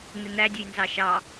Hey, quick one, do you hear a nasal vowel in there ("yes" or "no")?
no